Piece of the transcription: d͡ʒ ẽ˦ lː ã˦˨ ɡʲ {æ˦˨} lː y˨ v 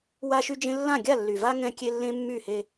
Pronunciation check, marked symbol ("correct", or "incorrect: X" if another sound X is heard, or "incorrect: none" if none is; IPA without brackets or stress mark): incorrect: a˦˨